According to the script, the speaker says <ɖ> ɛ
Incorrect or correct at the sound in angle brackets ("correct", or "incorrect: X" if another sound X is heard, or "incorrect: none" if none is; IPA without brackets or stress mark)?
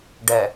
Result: correct